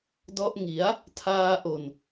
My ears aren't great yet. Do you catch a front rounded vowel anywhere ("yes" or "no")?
no